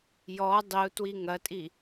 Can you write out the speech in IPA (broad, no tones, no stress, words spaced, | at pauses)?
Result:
jɔ dˤiu̯twi ŋɐtʼi